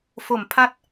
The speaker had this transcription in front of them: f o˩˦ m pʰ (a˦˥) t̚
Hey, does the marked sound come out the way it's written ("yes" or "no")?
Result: yes